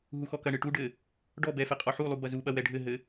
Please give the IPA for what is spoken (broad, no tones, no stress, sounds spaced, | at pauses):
ɦ u x ɔ k ɐ ɳ ɨ ʈ u ɖ ɘ | ɖ ɔ b ɛ f e qʼ ɔ ħ u lˠ u b ɐ z u ɓ ɐ w ɛ ɖʱ ɘ ɦ ɘ